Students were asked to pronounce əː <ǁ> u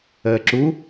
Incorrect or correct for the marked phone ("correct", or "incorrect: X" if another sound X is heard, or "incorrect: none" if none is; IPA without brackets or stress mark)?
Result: correct